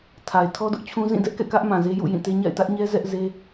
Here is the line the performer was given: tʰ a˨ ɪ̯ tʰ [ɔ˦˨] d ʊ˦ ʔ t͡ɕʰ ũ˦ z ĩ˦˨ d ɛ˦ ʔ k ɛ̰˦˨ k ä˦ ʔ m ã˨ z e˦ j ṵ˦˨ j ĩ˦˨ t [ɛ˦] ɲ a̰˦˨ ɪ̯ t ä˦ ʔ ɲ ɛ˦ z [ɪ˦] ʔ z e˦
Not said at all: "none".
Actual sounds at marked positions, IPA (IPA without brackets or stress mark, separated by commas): ɔ˦, e˦, ɛ˦